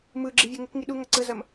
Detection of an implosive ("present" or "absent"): present